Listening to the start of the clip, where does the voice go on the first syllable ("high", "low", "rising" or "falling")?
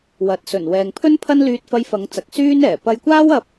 low